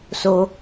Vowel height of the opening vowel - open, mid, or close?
mid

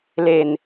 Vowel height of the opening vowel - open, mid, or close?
mid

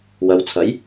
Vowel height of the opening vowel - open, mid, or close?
open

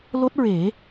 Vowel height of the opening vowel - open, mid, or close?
mid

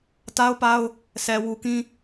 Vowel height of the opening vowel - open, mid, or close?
open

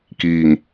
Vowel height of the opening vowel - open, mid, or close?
close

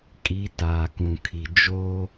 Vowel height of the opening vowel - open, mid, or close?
close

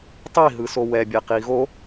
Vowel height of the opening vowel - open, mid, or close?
close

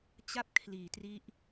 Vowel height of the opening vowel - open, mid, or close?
open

